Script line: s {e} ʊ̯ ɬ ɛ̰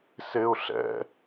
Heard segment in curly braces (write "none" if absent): e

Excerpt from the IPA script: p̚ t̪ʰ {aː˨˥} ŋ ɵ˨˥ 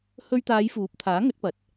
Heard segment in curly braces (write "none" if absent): aː˨˥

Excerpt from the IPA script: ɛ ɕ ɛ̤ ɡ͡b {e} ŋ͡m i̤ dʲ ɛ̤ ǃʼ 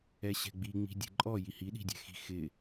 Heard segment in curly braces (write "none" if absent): i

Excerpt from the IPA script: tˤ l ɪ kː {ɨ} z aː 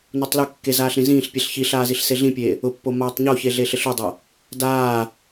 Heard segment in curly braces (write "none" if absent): e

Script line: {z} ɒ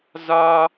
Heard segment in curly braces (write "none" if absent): z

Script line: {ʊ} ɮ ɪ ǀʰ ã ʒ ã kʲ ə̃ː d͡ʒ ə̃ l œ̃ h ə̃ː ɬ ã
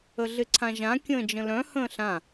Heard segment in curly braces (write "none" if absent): ə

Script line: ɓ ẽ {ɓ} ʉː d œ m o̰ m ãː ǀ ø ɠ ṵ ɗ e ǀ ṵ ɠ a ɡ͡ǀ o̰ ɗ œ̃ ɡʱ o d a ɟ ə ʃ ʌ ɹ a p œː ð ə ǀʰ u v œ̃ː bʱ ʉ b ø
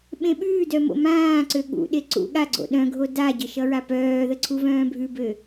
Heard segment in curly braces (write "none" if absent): ɓ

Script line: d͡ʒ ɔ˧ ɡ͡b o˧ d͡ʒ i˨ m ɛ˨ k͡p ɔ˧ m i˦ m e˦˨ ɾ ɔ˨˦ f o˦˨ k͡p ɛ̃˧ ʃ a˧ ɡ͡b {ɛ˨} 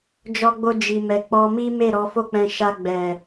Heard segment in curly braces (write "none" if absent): ɛ˨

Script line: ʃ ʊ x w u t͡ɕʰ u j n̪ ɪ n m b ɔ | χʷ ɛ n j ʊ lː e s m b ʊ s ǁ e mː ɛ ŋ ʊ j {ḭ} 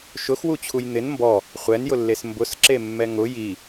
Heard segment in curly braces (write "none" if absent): i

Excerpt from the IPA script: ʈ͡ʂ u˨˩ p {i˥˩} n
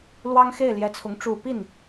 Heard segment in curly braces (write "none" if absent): i˥˩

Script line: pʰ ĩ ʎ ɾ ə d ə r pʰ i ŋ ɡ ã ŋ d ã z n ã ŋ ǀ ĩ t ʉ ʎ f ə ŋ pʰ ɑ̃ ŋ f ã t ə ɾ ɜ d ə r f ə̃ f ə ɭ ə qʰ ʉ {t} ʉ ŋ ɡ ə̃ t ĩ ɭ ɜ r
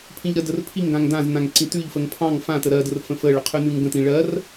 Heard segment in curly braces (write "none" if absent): n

